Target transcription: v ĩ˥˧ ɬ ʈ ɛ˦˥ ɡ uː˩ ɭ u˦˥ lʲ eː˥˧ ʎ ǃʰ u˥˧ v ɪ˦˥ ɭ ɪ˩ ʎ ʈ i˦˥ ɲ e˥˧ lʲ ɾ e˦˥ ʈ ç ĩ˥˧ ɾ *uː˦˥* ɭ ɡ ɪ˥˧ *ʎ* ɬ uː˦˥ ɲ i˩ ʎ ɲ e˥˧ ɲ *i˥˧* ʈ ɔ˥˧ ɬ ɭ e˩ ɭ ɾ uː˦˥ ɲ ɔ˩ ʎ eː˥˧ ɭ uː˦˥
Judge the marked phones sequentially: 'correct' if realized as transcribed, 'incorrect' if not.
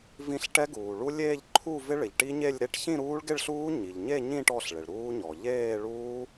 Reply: correct, incorrect: ɭ, incorrect: ĩ˥˧

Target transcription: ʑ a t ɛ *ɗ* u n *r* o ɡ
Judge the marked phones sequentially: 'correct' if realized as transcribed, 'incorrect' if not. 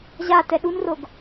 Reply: correct, correct

